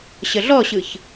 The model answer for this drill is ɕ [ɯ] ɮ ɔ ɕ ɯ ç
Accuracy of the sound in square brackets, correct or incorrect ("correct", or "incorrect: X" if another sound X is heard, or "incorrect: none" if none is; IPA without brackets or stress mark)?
incorrect: ə